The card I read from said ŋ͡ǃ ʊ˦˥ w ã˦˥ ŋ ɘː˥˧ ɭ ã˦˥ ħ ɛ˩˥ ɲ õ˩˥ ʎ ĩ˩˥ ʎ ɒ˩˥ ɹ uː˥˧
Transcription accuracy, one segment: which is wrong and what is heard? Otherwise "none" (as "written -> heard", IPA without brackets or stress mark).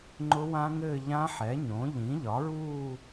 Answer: ɭ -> ʎ